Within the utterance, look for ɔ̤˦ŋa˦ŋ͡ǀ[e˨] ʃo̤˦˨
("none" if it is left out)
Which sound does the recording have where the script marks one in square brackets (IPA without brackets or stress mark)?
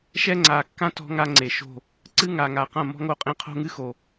e˨